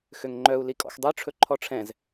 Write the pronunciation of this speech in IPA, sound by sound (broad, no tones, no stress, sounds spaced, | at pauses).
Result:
x ø ŋ ŋ͡ǃ œ u̯ l i kʼ ɔ̰ x dˤ ø ʈ͡ʂʰ ɵ ǃʰ ɔ ʈ͡ʂʰ ɛ̃ z